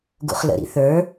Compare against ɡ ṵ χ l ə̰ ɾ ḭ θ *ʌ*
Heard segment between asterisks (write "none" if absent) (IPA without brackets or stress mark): ə˞